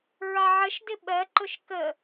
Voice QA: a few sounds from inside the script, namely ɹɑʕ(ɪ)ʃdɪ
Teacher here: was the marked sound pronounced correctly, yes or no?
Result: no